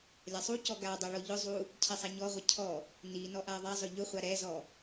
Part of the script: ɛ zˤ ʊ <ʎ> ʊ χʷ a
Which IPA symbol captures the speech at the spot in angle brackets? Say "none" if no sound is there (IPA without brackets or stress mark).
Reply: ʎ